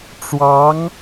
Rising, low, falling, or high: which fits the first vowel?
rising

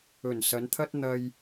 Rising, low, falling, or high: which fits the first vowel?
low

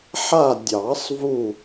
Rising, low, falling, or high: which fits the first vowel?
falling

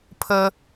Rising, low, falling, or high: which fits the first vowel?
high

